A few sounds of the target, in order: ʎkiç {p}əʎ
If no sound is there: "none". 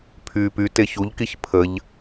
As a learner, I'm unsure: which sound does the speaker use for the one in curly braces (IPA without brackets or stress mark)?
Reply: pʰ